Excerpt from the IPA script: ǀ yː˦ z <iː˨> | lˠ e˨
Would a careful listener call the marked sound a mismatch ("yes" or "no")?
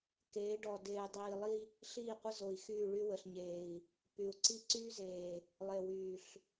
yes